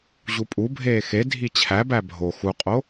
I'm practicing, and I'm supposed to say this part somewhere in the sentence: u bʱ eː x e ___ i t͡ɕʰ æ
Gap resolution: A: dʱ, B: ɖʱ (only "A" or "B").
A